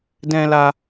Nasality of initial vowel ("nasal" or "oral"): nasal